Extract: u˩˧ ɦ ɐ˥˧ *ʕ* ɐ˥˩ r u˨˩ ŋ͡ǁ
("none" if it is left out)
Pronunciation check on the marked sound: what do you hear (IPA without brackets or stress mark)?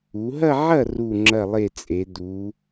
ʕ